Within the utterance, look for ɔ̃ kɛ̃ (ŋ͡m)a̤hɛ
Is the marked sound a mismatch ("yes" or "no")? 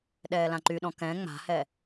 no